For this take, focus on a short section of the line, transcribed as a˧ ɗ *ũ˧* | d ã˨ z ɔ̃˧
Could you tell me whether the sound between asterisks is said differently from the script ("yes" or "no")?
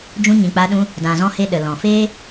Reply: no